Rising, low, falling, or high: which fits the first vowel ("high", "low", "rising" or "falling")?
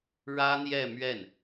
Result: high